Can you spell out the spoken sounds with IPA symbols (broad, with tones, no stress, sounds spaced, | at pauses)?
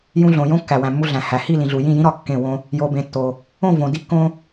j ũ˧ ɮ õ˨ j õ˦ kː æ˨ w æ̃˨ mː u˧ ɮ æ̃˨ h æ˨ h i˦˨ l ĩ˨ ɮ u˨ j ĩ˦˨ j ĩ˦ ɾ ɒ˧ kː ẽ˦˨ w õ˦ | j o˨ b ẽ˨ tː o˨ | õ˦˨ v õ˨ d i˧ kː õ˧